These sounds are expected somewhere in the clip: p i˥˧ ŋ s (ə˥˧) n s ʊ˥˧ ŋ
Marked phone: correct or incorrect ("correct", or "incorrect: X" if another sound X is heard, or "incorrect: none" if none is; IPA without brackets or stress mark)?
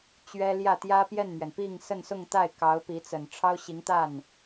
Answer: correct